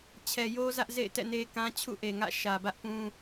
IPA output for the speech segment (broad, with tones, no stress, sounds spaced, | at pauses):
t͡ɕʰ ɛ˨ j o˦ z ä˦ ʔ z ḛ˦˨ ɪ̯ t ɛ̰˦˨ n e˦ k ã˦ t͡ɕʰ ṵ˦˨ ʔ e˨ ŋ ä̰˦˨ ʃ ä˨ b ä˦ ʔ p ũ˦